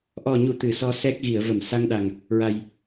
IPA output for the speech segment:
ʔɔ˨˩ɲu˨˩˨ t̪ɨ˨˩˨sɔ˧ sɛ˦˥k̚ ɣi˨˩˨ə̯və˨˩˨m sa˧ŋɗa˨˩ŋ | ɹa˨˩j

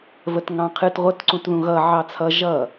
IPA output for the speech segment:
vətŋɑ̃qʰɨt ʁʷət ǀũtðũɣʌ ʕɑt͡sʰʌ ʒʌ

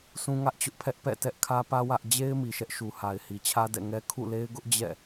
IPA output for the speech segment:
sʰũ˦ŋä˦ʔt͡ɕʊ˦ʔpʰɛ˦ʔ pɛ̰˦˨tɛ˦ʔ kʰä˦pä˦ wä˦ʔ d͡ʑe˦ɪ̯ mi˨ʃɛ˦ʔʃu˨ha˨ɪ̯ hi˨t͡ɕʰä˦dɛ̰˦˨ ŋɛ˦ kʰṵ˦˨le˦ɪ̯ɡʊ˦ʔ d͡ʑɛ̰˦˨

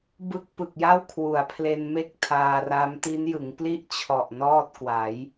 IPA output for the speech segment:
bɯ˥˩k̚ pɯ˨˩k̚ja˥˩wkʰwu˩˦a̯pʰle˧n me˥˩k̚tʰaː˧ra˦˥m ti˦˥njɯ˩˦ŋpli˥˩ʔ t͡ɕʰɔ˨˩ʔnɔː˥˩t̚kwa˩˦j

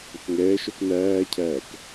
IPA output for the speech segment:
ʏkŋɛːʃœk næːcʰæːk

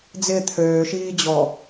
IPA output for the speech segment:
d͡zɪː t̪ʰøːʃiːd͡ʑɔ

